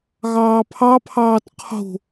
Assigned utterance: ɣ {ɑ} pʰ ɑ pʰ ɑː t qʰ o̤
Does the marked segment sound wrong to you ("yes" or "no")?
yes